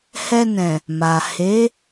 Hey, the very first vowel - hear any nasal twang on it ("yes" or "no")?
no